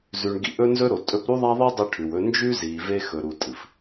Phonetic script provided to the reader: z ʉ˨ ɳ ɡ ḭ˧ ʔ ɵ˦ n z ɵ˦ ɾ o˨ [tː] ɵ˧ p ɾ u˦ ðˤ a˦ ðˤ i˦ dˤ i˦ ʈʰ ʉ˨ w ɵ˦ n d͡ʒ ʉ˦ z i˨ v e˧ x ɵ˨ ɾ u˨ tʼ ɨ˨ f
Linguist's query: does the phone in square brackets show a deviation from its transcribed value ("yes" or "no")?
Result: yes